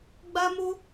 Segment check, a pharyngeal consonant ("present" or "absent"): absent